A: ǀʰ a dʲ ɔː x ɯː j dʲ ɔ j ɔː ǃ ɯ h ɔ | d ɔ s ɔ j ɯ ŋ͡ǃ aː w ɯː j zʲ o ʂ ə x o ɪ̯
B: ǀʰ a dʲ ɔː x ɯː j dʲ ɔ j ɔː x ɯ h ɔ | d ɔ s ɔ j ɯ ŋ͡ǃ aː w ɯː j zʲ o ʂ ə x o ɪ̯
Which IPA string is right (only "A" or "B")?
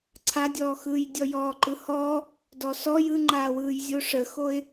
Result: A